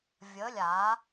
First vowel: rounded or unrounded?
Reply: unrounded